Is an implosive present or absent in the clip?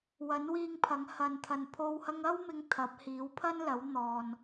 absent